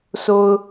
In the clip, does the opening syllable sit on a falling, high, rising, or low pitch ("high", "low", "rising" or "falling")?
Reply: low